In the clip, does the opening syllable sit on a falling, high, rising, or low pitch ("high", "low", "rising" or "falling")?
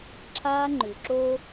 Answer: high